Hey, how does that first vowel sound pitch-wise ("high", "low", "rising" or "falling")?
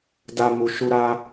high